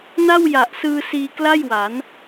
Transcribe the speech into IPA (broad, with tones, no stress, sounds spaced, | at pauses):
n a˥˩ w j a˨˩ ʔ s ɯː˧ s iː˧ k l a˥˩ j w a˩˦ n